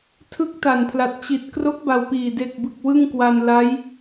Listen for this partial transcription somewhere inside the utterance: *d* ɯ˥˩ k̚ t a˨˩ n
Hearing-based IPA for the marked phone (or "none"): tʰ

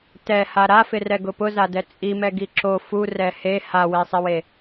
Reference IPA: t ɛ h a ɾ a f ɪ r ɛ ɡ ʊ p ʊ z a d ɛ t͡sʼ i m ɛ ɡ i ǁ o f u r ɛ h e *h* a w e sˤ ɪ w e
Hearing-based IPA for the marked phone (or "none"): h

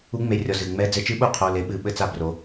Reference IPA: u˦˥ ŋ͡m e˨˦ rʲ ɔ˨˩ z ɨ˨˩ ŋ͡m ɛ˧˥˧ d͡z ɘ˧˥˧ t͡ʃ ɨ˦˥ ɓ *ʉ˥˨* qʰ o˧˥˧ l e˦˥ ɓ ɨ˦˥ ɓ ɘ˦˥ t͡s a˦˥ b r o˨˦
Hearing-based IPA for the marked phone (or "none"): u˥˨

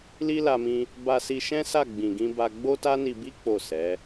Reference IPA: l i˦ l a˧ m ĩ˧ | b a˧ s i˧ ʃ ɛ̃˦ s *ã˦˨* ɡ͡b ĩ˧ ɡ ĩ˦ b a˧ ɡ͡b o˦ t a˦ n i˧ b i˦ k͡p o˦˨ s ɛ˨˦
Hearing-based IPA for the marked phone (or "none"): a˦˨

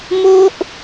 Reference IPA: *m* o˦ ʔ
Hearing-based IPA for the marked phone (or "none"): m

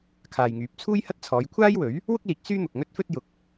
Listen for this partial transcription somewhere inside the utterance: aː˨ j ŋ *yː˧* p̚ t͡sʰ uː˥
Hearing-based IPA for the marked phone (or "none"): yː˨˥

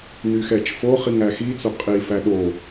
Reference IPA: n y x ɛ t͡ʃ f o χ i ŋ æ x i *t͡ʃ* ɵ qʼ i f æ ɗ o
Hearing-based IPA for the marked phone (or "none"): t͡s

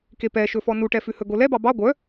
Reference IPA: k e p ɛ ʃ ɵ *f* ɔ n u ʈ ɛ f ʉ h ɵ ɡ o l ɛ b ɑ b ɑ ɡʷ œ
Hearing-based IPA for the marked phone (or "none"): f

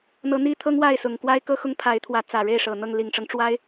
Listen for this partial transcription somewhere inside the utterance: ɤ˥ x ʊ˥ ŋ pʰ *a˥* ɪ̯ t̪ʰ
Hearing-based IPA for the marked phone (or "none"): a˧˥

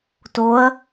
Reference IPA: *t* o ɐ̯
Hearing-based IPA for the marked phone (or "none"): t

